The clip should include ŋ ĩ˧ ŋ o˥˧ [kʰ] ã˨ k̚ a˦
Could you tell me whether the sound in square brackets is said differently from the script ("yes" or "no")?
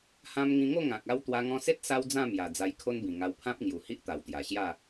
yes